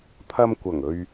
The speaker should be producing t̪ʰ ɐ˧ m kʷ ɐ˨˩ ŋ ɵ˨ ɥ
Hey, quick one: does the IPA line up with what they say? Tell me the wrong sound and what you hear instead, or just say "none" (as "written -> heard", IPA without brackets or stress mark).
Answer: none